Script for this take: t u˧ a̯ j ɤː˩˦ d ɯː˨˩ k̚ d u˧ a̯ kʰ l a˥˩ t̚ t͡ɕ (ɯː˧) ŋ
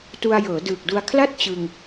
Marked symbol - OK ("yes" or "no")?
no